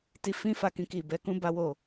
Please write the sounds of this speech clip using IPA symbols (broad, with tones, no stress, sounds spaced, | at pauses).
t i˧ f ĩ˦ f a˦˨ k ĩ˧ k i˨ b ɛ˨˦ k ũ˦ b a˦ w o˦˨